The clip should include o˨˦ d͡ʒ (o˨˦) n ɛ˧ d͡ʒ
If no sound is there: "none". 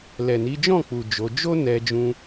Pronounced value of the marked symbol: o˦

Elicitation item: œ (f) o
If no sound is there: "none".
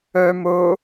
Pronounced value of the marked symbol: m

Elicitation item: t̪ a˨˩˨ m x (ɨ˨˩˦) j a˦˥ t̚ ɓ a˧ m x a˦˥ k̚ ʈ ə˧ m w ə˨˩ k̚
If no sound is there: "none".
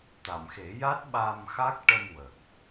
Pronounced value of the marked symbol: e˨˩˦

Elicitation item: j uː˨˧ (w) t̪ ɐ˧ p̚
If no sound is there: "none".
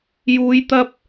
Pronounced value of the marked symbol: j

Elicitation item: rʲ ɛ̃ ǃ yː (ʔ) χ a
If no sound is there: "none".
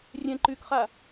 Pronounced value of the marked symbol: k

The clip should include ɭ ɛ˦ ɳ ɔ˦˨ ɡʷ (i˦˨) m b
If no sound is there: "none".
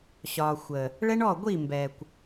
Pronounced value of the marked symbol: i˦˨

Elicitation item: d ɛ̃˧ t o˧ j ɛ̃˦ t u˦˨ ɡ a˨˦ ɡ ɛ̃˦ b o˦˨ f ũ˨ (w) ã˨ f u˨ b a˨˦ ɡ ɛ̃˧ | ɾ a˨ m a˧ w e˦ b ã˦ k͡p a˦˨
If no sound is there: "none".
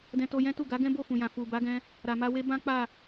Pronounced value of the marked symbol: j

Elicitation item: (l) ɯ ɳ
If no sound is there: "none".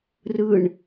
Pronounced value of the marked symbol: r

